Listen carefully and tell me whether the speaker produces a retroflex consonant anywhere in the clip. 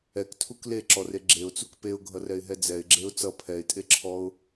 no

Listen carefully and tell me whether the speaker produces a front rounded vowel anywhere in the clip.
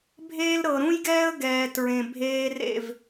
no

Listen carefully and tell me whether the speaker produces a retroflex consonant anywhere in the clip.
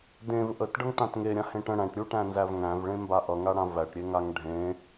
yes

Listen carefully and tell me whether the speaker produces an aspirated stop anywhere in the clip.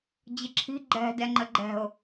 yes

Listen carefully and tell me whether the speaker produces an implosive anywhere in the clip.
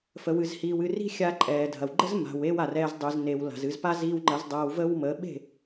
yes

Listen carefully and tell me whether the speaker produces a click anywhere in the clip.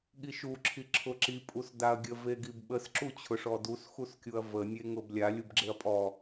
yes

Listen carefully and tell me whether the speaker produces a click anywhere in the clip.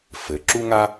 yes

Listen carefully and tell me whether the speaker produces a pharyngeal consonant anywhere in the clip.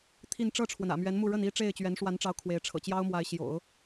no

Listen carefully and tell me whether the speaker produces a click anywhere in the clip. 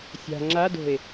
yes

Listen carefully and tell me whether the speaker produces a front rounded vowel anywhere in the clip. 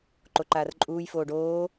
no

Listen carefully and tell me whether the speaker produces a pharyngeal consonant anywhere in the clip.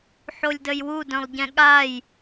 yes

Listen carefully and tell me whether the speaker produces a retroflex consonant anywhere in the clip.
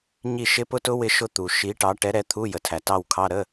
yes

